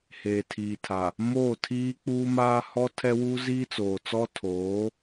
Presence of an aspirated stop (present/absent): present